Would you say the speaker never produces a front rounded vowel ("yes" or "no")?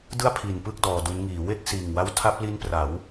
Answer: yes